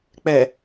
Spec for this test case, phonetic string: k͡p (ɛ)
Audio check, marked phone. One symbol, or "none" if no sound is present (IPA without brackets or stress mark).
ɛ